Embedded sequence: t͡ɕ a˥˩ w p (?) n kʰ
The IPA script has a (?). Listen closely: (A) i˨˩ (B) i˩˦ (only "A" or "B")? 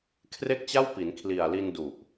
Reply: B